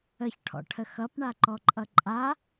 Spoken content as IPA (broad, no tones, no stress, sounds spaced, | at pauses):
ə ç ʈʰ ɔ̰ ʈʰ ə x ʌ p ɳ a ǃ ɔ ǃʼ ʌ ǃʼ a